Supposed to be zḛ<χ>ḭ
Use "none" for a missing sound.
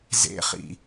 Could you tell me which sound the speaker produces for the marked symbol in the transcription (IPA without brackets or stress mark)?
χ